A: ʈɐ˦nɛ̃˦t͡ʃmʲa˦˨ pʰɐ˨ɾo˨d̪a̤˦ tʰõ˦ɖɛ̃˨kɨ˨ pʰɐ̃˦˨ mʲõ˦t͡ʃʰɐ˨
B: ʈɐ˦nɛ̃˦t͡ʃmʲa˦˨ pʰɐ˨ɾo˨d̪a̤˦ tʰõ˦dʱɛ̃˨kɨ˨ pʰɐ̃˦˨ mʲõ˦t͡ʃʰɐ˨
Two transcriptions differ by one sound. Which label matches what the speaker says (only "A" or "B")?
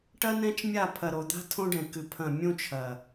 A